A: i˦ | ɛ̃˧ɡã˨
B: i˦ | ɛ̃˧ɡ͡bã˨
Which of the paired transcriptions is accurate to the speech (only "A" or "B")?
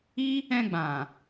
B